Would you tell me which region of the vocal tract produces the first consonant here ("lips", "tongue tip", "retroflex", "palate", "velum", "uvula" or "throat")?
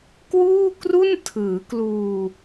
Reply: velum